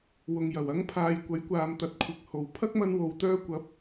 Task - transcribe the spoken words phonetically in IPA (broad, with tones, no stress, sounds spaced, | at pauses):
w ʊ˨ ŋ j ɐ˨˩ w ɐ˧ ŋ pʰ aː˨˧ j kʷ ɐ˨˥ j kʷ aː˨˧ m t̪ ɐ˨ t̚ kʷʰ ɪ˨ k̚ h o˨ w pʰ ɐ˥ k̚ m ɐ˧ n w o˨ w t̪ œː˧ kʷ ɐ˨˥ p̚